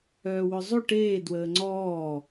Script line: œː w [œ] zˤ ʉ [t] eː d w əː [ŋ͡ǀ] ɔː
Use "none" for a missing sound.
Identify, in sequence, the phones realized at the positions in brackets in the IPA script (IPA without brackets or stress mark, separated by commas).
œ, ʈ, ŋ͡ǀ